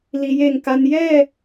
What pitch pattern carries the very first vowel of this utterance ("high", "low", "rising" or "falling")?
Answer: low